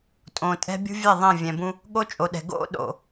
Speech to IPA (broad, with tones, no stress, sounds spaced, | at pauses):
tʼ õ˨ tʼ ɛ̤˦ bʲ ṳ˦ vʲ ɛ˦˨ ðˤ ɛ̃˦˨ vʲ ɛ̃˨ b ũ˦ | ɠ o˦ t͡ʃʼ o˨ ɗ ɛ̤˨ ɡ o̰˦˨ ɗ o̰˦˨